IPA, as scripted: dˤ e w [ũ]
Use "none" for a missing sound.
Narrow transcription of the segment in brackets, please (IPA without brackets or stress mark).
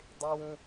ũ